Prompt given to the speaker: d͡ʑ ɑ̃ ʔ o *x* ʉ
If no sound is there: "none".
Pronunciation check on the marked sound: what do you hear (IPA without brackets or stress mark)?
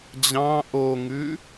ŋ